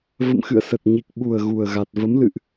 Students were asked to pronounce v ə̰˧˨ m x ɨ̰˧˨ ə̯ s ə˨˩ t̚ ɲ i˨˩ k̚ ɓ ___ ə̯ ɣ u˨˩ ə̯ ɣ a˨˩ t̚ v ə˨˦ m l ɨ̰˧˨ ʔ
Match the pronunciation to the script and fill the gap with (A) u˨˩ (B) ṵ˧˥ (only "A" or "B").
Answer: A